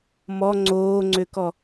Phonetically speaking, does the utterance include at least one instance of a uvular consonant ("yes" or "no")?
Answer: no